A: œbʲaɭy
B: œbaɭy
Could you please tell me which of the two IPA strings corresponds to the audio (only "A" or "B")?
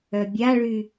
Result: A